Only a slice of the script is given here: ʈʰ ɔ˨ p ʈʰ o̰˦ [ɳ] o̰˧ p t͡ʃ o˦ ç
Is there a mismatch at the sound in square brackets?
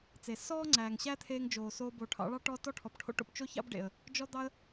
yes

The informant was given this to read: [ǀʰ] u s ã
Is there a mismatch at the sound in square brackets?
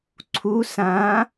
no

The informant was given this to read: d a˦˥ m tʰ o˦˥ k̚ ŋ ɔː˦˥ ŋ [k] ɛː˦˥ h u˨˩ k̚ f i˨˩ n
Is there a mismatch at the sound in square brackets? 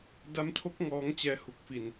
yes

